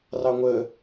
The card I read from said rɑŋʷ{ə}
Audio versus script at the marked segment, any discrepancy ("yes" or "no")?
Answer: no